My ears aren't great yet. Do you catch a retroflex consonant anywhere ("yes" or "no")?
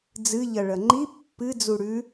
yes